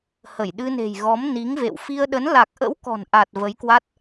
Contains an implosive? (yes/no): yes